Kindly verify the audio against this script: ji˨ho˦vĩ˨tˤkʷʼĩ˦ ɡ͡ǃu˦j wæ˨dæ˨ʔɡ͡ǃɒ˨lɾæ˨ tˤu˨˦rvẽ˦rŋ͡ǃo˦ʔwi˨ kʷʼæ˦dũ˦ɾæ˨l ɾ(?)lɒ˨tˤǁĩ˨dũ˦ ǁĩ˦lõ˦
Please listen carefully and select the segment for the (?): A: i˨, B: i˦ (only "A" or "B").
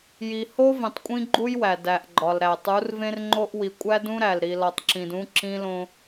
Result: A